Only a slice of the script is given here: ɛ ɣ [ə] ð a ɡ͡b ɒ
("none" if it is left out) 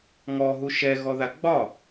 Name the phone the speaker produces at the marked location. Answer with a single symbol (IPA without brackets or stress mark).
ɔ